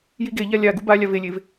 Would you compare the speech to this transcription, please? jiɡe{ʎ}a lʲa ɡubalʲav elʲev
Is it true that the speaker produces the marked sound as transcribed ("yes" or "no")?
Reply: yes